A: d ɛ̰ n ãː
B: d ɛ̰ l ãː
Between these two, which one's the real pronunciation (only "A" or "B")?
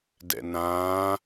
A